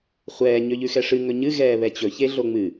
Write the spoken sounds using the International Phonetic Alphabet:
χʷ ɛː ɲ ø ʎ ʉ x ɛ ʂ ɨ ŋ ɵ ɲ ɨ ɣ ɛː β ɛ t͡ɕ ɵ ç e ɮ o ŋ͡m ɨ

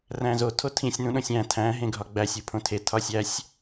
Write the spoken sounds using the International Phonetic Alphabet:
r æ̃ z o tʰ o tʰ ĩ sʲ n ũ ɗ õ sʲ æ̃ tʰ æ̃ ɦ ẽ ɡʱ ɒ ɡ͡b æ sʲ u pʰ õ tʰ e tʰ ɒ sʲ æ sʲ

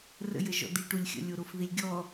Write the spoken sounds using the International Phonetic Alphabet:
r ə̰ j ə ʒ ɔ̰ d̪ i ʈ u lʲ xʲ ə̰ lʲ o ɾ o f ð i lʲ ɡʲ ɔ

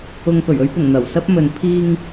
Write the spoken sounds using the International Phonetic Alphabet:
ʊ˨ ŋ p ɵ˨˩ ɥ ɵ˧ ɥ p ʊ˨˩ ŋ n̪ ɐ˨˩ w s ɐ˧ p̚ m ɵ˨ n pʰ iː˨ ŋ

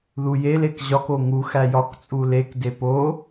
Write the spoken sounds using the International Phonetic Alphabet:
ð u j e l e k ʑ ɒ k o ŋ u x æ j ɒ k t͡sʼ u l e k d e p o

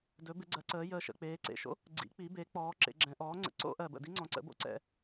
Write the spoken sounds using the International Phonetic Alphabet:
d ɵ˩˥ b ɪ˩˧ ɡ͡ǀ ɜ˩˧ ǀ əː˩˧ j əː˨˩ ʃ ə̰˨˩ k͡p eː˩˧ ǀ ḛ˨˩ ʃ o̰˦˥ | ɡ͡ǀ ḭ˩˥ k͡p i˩˥ b e˩˥ k͡p ɔː˩˧ ǁ ḛ˩˧ ɡ͡ǁ ɛ̃˩˧ ʔ ɔː˩˥ ŋ͡ǀ ə̰˩˥ ǀ o̰˦˥ ʔ ɜ˨˩ b ə̰˨˩ d i˦˥ ŋ͡ǀ ɔ̃˩˧ ǀ ə̰˩˥ b o̰˦˥ ǀ ɛ̰˨˩

